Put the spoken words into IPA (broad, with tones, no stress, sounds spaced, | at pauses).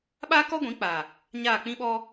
ɓ aː˦ k ɔ˦ ɡʷ ĩ˨˦ k͡p aː˨ | ɲ aː˦˨ k͡p ĩ˦ ɓ ɔ˦